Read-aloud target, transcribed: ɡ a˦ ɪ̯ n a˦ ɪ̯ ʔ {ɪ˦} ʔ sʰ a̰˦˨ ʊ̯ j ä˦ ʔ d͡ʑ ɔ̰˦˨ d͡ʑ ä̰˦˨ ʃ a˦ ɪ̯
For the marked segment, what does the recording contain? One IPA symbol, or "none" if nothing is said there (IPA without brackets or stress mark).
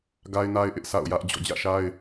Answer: ɪ˦